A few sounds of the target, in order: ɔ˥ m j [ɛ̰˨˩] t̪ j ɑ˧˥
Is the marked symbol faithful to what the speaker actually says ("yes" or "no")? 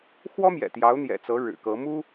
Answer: yes